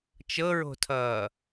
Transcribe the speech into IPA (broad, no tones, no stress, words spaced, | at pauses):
t͡ʃɤɹo̤tʰʌː